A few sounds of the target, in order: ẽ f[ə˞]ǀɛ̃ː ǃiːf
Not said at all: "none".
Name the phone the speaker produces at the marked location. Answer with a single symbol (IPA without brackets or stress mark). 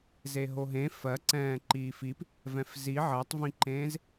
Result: ɜ